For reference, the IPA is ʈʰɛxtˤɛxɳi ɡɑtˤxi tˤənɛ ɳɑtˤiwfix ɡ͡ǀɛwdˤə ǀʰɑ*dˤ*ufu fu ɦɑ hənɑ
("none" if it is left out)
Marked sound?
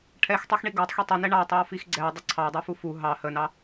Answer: dˤ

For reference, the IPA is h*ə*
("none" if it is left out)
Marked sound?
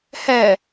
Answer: æ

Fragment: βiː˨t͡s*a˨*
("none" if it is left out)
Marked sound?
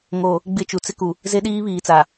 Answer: a˨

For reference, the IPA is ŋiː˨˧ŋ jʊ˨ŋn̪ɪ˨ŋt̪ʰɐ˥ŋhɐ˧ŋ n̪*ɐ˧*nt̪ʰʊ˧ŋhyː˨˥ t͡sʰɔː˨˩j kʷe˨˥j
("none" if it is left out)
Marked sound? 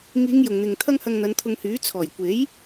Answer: ɐ˨˧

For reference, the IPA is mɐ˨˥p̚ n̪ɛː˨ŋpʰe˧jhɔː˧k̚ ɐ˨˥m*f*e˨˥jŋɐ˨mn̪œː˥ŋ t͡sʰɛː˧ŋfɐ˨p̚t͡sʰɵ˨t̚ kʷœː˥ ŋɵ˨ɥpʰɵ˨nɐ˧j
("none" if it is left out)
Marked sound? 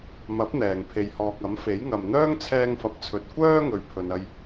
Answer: f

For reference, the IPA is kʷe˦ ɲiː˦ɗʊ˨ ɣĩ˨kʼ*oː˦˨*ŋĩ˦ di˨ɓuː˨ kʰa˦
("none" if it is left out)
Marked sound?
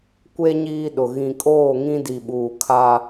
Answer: oː˦˨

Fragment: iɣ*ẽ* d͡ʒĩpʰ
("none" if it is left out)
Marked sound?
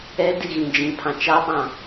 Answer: ĩ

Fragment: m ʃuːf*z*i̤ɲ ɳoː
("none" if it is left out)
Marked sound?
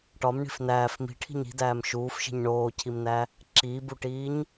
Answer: ʃ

